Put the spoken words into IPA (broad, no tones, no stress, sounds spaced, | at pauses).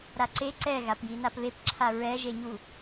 ɾ a ǀ e ǀ ɛ ɣ a p j i n a p β e p ǁʰ a ɹ ɛ ʒ e ɲ u